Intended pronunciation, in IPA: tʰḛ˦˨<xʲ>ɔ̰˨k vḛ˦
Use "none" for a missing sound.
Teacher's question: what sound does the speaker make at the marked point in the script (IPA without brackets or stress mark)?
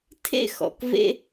x